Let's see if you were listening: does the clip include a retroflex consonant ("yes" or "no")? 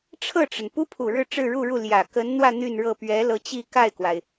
yes